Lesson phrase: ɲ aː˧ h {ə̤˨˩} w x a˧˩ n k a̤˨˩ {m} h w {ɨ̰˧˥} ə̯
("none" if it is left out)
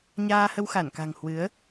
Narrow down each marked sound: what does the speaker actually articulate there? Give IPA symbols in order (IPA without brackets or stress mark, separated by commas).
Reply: ə˧, ŋ, ɨ˨˦